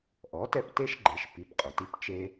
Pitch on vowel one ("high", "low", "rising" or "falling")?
rising